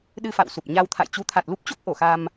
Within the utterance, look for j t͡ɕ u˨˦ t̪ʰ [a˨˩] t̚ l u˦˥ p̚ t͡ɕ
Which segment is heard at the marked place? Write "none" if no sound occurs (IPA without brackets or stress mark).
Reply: a˨˩